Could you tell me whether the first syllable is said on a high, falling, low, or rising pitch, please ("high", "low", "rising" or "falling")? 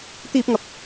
high